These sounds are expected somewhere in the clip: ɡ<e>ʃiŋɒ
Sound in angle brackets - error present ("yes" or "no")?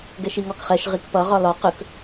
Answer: yes